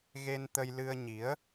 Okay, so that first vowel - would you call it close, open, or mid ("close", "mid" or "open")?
mid